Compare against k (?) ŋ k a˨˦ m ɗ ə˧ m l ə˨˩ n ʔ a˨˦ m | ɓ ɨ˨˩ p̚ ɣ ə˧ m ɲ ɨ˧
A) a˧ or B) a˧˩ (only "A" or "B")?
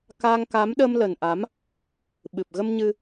A